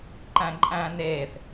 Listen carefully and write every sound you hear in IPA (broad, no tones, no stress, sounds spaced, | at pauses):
ǃ æ̃ ǃʼ æ̃ n e θ